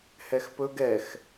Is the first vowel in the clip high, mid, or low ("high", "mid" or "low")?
mid